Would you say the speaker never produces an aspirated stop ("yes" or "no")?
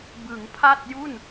no